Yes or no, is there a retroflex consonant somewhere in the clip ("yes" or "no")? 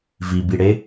yes